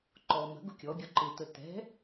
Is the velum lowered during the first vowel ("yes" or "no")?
no